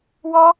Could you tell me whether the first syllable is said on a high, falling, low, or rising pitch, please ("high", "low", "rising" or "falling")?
high